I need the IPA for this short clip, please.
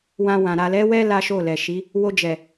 w ã˧ w ã˨ ɾ a˨ l ɛ˨˦ w ɛ˦ l a˦ ʃ o˦˨ l ɛ˨ ʃ i˨˦ | w o˧ d͡ʒ ɛ˨

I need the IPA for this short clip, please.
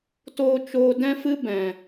t oː˧ t͡ʃ oː˧ d ɛ̃˦ f ɨ˦ b ɛ̃˨

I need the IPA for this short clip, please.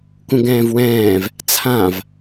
k ũ ɡ ɛ̃ː v w ɛ̃ː v | t͡sʰ ã v

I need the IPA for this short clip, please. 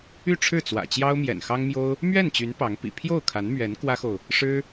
y˥˧ ʈ͡ʂʰ ɻ̩˥˩ t͡s w ä̰˨˩ t͡ɕ j ɑ˥ ʊ̯ m j ɛ̰˨˩ n x ɑ˥ ŋ m j o˥ ʊ̯ | m ɥ ɛ˥˩ n t͡ɕ y˧˥ n p ɑ˧˥ ŋ p ḭ˨˩ pʰ j o˥˩ ʊ̯ kʰ a˧˥ n m ɥ ɛ˧˥ n k w ä˥ x o˨ ʊ̯ | ʂ ɻ̩˥

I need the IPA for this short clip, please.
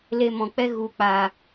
l e˧ m ɔ̃˨ k͡p ɛ˦ ɣ u˨ k͡p aː˨

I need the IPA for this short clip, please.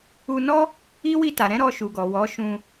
u˧ n ɔ˦ | i˦ w i˧ t a˨ ɾ ɛ̃˨˦ ɾ ɔ˧ ʃ u˨ ɡ ɔ˨ w ɔ˨˦ ʃ ũ˧

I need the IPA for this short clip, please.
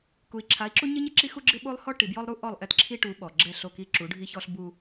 k u˨ i̯ ǁʰ a˨˦ i̯ ǁ u˦ ɲ ɪ˦ ɲ ɪ˦ ǁ i˦ x u˦ ɡ͡ǁ ɪ˦ ɓ o˦ lˠ h ɔ˦ ʈ i˨ b j ɔ˦ lˠ ɾ u˦ ʔ ɔ˦˨ lˠ ʔ ɛ˦ t ǁʰ i˦ ʈ u˨˦ ɓ ɔ˨ ɡ͡ǁ ɛ˦˨ ɬ o˦˨ k i˦ ǁ u˨˦ ɖʱ i˦ ç ɔ˦ ɬ b u˦

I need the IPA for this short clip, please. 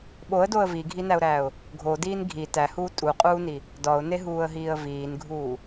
ɓ o ə̯ d o ə̯ v i ɡʱ i n æ ʊ̯ ɾ æː ʊ̯ | ɡʱ o d iː n ɡʱ i t æ h uː tʼ u qʼ uː n i | d ɒ ʊ̯ n e ɦ uː ə̯ ɦ iː ə̯ v iː n ɡʱ uː

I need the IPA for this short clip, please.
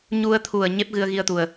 ɲ u˧ ə̯ t̪ʰ u˨˩ ə̯ ɲ e˦˥ p̚ ɣ ɨ˧ ə̯ ɣ i˧ ə̯ t̪ u˨˩ ə̯

